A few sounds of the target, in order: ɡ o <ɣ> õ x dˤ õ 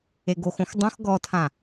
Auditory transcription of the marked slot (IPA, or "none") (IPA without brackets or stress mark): x